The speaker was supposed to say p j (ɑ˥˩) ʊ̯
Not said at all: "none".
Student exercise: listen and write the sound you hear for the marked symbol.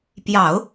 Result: ɑ˨˩˦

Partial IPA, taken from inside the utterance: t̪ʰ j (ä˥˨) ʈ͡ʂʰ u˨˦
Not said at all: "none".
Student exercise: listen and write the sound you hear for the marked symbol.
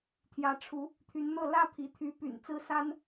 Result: ä˨˦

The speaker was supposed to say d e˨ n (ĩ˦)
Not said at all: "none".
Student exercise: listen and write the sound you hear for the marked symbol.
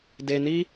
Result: i˦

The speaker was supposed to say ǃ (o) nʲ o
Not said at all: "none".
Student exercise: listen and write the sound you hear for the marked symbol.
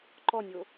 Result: ɔ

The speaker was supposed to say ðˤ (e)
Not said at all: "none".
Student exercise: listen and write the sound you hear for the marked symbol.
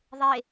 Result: e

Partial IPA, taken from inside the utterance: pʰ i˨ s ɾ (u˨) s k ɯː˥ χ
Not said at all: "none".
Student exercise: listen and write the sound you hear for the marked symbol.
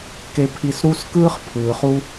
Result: u˦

